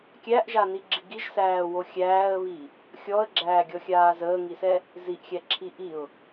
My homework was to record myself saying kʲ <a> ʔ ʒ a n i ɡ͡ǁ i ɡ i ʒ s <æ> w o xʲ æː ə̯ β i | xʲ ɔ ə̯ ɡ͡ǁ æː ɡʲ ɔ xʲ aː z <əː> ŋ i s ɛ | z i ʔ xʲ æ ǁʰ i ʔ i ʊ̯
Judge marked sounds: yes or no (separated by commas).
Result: no, no, yes